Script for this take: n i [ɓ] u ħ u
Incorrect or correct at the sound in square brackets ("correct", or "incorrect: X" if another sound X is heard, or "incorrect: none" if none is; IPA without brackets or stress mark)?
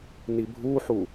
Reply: incorrect: bʱ